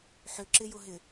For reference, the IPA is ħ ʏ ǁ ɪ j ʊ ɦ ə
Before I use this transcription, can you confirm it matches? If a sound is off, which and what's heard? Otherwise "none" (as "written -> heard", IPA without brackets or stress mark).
ə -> ɪ